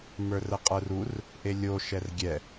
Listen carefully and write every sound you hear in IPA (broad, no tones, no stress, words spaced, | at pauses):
mə˞rəqʼə˞rur | ʔelʲo ʃɛrɡʲɛ